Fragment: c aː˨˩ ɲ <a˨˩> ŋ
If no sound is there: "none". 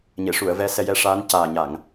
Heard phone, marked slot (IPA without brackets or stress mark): a˨˩˨